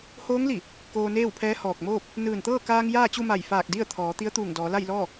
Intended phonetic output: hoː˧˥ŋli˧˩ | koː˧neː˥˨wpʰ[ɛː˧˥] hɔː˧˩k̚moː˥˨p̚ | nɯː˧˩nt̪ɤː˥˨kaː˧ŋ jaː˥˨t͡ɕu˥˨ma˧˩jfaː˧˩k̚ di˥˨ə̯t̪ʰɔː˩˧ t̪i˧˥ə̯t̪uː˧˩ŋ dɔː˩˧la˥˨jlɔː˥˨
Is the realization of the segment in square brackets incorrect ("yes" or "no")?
no